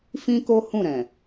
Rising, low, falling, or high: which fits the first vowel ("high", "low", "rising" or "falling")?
high